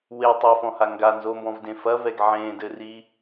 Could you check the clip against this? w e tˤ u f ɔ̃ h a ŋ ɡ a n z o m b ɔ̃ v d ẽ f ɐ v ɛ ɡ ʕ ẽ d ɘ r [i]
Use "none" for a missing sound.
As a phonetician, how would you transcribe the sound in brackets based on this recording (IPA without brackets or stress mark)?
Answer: i